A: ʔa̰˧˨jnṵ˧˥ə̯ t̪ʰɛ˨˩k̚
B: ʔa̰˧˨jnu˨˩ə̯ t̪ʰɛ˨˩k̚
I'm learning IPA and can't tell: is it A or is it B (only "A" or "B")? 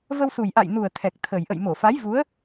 B